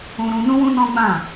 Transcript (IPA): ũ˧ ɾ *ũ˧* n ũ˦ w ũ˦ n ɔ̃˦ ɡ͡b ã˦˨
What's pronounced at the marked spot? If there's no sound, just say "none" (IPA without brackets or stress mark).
ũ˧